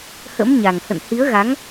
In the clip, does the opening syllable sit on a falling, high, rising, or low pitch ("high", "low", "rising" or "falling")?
rising